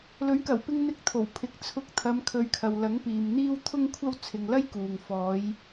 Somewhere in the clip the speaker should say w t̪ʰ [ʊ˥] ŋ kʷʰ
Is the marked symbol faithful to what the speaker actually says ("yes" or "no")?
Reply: yes